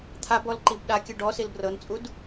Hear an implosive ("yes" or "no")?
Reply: yes